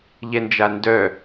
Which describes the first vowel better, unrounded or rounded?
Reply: unrounded